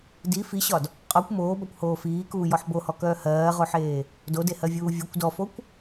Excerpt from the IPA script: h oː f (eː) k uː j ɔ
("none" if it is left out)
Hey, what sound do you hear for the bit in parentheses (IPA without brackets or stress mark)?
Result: iː